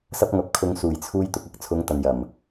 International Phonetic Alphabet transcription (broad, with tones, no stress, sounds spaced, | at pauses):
s ɐ˥ p̚ ŋ ɐ˧ p̚ kʰ ʊ˧ ŋ s uː˨˩ j t͡sʰ uː˧ j t̪ ʊ˨ k̚ ɐ˥ k̚ t͡sʰ ʊ˨˧ ŋ t̪ ɐ˨ n j ɐ˨˩ m